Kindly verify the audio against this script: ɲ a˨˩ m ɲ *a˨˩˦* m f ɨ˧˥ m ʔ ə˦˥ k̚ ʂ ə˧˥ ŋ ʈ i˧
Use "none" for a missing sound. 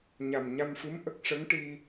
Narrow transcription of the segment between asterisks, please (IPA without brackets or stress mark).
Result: a˧